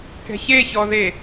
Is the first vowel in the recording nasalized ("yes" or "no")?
no